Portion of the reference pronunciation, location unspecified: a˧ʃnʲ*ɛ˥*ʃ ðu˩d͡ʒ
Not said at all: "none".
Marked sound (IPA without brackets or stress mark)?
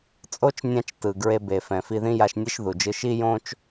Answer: ɛ˥